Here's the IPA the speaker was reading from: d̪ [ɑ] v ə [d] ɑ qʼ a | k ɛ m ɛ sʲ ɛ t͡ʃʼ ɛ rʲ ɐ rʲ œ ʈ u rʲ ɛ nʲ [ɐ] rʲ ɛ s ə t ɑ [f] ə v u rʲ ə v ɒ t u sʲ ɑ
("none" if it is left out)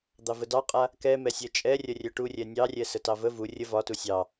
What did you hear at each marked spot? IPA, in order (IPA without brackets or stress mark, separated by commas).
ɑ, d, ɑ, v